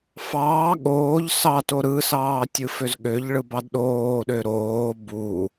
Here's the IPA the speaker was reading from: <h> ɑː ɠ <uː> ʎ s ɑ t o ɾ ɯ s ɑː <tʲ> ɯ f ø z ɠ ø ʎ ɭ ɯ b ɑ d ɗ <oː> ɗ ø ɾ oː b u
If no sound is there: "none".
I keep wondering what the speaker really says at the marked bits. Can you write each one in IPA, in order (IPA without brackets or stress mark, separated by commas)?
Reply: f, oː, tʲ, oː